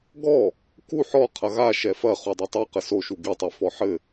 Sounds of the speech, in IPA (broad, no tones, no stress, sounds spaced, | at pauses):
ɡ ɔ | k u ħ ɔ qʰ ɐ ɣ a ʃ ɛ f ɐ χ u dˤ ɐ tˤ i q ɘ s o ʃ u ɡ i tˤ ɛ f ɔ ħ ɘ